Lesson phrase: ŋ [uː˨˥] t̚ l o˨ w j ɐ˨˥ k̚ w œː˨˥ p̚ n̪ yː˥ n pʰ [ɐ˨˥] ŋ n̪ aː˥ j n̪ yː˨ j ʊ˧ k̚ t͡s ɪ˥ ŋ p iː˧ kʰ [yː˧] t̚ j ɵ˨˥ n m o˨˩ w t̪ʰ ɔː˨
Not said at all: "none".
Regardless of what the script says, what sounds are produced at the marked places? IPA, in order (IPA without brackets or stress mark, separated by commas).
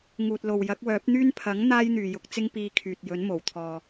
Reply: uː˨, ɐ˨˥, yː˨